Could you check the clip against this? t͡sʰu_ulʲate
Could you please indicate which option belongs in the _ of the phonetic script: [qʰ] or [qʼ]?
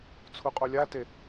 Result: qʼ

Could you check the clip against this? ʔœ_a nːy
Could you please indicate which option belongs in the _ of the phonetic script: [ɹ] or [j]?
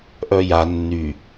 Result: j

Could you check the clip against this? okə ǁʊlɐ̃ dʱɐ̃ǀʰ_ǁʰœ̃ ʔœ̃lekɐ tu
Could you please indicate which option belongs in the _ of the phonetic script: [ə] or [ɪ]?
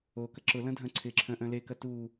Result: ɪ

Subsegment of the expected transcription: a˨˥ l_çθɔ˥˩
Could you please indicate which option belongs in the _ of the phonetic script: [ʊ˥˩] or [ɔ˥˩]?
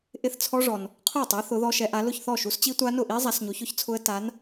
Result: ʊ˥˩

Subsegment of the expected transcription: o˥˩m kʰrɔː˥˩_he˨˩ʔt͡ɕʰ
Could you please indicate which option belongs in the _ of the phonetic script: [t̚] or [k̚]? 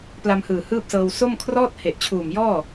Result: t̚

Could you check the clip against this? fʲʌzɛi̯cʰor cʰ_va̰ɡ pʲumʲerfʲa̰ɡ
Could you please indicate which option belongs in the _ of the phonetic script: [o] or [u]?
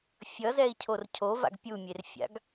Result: o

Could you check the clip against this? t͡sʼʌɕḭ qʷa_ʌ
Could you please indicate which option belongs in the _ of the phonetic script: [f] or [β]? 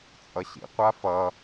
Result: f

